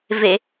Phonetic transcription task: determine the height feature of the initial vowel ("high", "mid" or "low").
mid